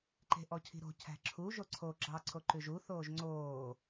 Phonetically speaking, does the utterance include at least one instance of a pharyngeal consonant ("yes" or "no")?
no